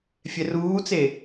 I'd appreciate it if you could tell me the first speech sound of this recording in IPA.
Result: fʲ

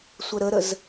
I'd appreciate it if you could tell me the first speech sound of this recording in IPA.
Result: sʷ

